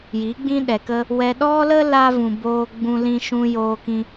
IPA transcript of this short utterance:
ji˨˦ɡ͡bĩ˦ɗɛ˨kə˦ | wɛ˧ ɗɔ˦lə˦ la˦vũ˨boː˧ ɡ͡bũ˦lĩ˦ʃũ˦ joː˧kĩ˧

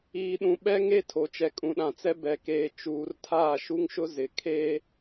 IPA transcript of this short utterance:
iː˨ɗũ˨ ɓɛ˦ŋe˦ tʰo˨t͡ʃɛ˨ kʼũ˨ɗã˨t͡sɛ˦ bɛ˨keː˨ t͡ʃuː˨rtʰaː˦˨ʃu˦ŋʃʊ˦ zɪ˨kʰe˦

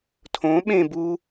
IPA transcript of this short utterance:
tʰõ ɓẽ bu

